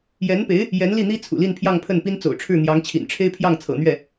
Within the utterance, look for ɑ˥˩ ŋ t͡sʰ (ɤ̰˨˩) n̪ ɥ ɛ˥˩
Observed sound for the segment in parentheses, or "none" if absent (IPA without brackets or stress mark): ɤ̰˨˩